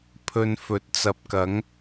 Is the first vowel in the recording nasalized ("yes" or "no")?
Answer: no